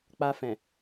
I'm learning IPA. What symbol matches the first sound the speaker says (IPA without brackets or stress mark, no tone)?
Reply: k͡p